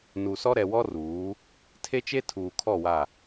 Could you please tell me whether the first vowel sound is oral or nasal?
oral